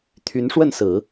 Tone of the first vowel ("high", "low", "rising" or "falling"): rising